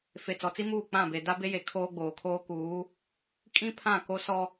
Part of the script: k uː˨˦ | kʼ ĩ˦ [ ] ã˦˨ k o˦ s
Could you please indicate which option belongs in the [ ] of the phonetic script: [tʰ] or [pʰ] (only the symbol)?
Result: pʰ